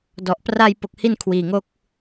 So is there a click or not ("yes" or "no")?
no